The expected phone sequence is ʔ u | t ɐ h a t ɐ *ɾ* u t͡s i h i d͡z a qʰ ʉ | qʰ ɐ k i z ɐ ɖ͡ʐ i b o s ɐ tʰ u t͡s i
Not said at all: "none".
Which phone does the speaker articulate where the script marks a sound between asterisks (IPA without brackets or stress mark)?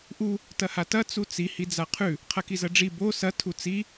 t͡s